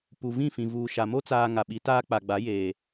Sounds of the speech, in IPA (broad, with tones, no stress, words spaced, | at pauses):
pu˨vĩ˦˨fĩ˨ vuː˨ʃa˨mo˦ t͡saː˨ ŋa˨ɓi˨˦ taː˦k͡pa˨ɡ͡ba˨˦ jeː˨